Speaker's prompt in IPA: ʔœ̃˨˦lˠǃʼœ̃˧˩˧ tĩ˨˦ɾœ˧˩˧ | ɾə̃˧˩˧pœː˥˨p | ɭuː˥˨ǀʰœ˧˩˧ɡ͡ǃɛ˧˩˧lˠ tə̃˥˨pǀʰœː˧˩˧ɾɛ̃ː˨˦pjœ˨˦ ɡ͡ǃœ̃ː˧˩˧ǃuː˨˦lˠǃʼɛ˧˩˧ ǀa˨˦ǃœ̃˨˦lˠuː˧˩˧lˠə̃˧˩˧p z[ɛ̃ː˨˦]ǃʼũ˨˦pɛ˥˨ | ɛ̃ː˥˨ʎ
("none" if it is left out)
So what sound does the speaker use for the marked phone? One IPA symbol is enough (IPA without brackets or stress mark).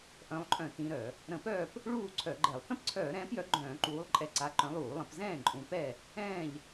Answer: ɛ̃ː˥˨